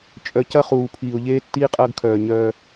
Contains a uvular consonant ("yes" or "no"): yes